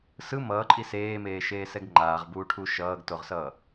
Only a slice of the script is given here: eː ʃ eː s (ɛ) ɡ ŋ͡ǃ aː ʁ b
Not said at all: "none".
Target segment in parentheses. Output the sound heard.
ɛ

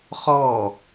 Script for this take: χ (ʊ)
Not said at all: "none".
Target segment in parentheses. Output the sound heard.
ɔ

